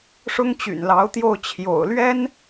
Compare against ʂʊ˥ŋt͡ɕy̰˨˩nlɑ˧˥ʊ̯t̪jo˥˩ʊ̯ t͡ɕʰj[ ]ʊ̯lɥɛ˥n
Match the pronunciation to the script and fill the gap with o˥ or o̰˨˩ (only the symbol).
o̰˨˩